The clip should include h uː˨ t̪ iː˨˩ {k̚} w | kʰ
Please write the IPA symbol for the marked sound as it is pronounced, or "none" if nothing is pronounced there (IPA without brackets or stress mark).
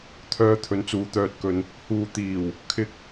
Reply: none